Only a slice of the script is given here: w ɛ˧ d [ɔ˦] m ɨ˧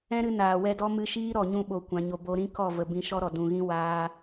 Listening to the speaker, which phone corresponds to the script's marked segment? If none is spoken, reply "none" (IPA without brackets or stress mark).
ɔ˦